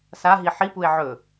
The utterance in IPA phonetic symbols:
s a ɦ i ħ i p u e̯ ʕ ɵ

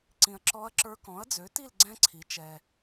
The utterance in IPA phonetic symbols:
ǀ ĩ˨ ɐ̯ ǁ ɔ˧˥ ɐ̯ ǁ ə˞˧˥ k ɔ̃˩˥ ɐ̯ d͡z ø˩˥ t i˥˨ l ɡ͡ǀ ɛ̃˥ ǀʰ i˩˥ t͡ʃ ɛ˨

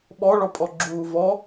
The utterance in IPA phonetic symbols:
ɓ ɔ ɭ ɔ pʼ ɔ ɡ͡ǁ uː v ɔ

